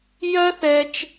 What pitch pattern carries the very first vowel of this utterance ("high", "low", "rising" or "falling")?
high